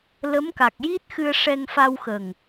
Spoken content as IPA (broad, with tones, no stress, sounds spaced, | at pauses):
l ə˧˥ m k a˨˩ k̚ j i˦˥ t̚ x ɨ˧ ə̯ ʂ ɛ˧ ŋ f a˧ w x ə˨˩ ŋ